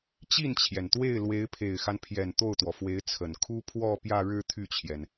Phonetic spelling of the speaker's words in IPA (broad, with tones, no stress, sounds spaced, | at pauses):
t͡ɕ i˥˩ n t͡ɕʰ j ɛ˩ n t̪ w e˥˩ ɪ̯ l w e˧˥ ɪ̯ pʰ e˨˩ ɪ̯ x a˦ n pʰ j ɛ˨˩ n t̪ o˥˩ ʊ̯ t̪ w ɔ˩ f w e˧˥ ɪ̯ t͡sʰ ə˨˩ n kʰ u˥ pʰ w ɔ˥˧ p j ä˥˧ ɻ ɻ̩˥˧ t̪ʰ y˥˩ t͡ɕʰ j ɛ˩ n